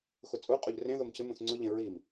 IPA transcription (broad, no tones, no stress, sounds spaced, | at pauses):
x ʊ t͡sʼ u qʼ o ʎ r ẽ ð o m cʰ ɪ m ũ θ ŋ͡ǀ ʊ ʎ ẽ ɹ i m